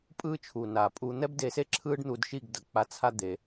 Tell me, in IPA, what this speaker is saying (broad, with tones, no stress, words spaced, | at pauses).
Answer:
pʼɯː˦t͡ʃʰuː˨naː˨pʼuː˧ n̪ɛ˦bde˧se˦ ǁʰɯː˦ɖn̪u˧dʃi˦˨ɡ dʌ˨k͡pa˧t͡sʰa˦ d̪e˧